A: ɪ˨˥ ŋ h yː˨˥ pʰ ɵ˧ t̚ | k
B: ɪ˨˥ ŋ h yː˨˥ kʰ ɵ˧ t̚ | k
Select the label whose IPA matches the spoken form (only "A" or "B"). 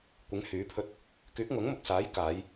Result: A